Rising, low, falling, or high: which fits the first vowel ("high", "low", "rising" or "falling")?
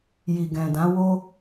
low